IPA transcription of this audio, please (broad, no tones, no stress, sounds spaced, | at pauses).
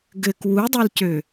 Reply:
ɡ ɘ k w u dˤ o l c ø